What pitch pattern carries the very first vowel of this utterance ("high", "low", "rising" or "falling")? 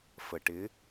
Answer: low